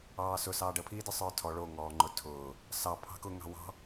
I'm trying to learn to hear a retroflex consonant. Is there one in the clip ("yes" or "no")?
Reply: yes